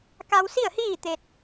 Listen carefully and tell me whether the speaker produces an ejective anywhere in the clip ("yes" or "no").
no